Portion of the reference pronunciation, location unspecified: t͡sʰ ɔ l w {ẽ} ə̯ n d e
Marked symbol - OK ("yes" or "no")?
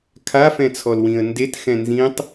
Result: no